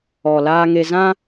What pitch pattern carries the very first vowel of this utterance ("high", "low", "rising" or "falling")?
low